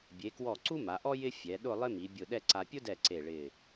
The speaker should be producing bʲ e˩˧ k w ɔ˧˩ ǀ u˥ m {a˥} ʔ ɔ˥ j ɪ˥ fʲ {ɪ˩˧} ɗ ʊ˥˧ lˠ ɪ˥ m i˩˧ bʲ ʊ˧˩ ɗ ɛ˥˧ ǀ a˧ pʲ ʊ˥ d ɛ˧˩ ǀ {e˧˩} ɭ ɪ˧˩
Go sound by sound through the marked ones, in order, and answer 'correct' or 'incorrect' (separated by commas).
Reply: incorrect, incorrect, correct